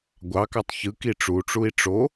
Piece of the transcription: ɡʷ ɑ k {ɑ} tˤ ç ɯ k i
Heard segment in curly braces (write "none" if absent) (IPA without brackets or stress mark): ɑ